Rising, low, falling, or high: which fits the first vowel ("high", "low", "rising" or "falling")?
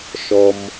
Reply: low